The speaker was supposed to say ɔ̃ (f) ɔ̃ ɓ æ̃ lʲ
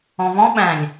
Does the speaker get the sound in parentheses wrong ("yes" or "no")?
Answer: yes